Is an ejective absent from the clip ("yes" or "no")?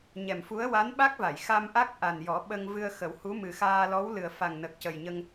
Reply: yes